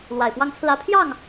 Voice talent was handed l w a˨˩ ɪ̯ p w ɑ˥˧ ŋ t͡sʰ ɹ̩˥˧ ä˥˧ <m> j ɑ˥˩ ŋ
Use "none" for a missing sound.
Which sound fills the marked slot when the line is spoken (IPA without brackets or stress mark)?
pʰ